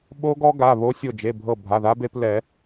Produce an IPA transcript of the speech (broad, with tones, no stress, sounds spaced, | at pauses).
ɓ o˦˥ ɡ ɔ˦˥ ɡ a˩˧˩ β o˧ sʲ o˧˩ d͡ʒ e˩˧˩ bʱ ɤ˧˩ bʱ a˩˧˩ ð a˦˥ b e˧ p l ɛ˨˩˦